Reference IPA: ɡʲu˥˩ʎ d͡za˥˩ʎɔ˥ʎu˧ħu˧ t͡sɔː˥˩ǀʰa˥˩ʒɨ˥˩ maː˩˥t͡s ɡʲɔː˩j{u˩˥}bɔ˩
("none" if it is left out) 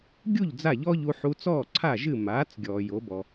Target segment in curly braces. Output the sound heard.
o˩˥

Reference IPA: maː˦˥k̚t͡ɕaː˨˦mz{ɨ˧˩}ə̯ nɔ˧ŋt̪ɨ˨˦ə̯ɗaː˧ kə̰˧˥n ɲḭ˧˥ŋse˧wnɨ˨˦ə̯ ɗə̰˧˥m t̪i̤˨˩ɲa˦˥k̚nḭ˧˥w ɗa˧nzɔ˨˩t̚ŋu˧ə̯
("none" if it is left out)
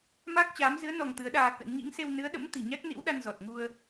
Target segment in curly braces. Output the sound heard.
ɨ˨˦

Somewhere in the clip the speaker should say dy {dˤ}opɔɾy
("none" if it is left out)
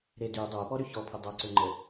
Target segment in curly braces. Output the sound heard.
dˤ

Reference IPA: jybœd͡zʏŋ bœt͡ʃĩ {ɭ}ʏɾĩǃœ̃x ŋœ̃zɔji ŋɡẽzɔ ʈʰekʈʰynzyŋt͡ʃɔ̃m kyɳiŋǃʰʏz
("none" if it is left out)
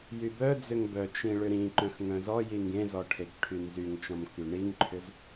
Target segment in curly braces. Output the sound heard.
ɭ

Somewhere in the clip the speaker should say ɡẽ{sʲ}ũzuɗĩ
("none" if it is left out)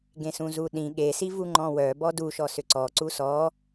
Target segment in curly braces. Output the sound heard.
s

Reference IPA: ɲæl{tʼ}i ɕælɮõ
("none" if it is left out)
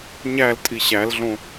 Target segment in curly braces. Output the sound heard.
tʼ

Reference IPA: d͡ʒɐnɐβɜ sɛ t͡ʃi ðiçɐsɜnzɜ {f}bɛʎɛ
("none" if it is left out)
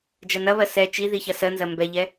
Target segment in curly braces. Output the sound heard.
m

